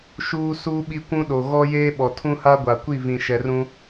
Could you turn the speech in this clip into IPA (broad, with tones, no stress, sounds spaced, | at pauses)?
ʃ uː˦ s uː˦ ɓ i˦ kʷ ũ˦ ɗ o˨ ɣ ɔ˦ j eː˦ ɓ ɔ˨ tʰ ũ˦ h a˦ ɡʷ a˨ kʷ i˦˨ v ĩ˨ ʃ ɛ˨ r ũ˦